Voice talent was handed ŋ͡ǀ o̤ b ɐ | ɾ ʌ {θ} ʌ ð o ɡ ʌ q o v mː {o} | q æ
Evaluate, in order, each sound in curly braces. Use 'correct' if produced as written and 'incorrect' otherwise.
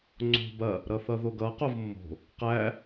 correct, incorrect: o̤

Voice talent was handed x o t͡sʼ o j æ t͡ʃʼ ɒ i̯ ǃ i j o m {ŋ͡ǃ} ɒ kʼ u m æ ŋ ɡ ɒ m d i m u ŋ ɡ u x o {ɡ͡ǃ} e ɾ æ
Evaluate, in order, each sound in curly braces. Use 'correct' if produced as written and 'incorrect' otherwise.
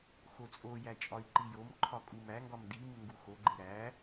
incorrect: ǃʰ, correct

